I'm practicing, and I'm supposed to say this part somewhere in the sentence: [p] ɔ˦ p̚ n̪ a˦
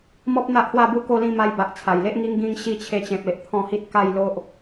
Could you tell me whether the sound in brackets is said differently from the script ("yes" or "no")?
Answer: yes